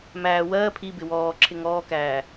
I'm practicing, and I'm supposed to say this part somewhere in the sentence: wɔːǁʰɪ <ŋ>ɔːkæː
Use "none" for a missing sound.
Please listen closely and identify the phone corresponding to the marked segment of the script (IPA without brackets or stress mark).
ŋ